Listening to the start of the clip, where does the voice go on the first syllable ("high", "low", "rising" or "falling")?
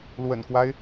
low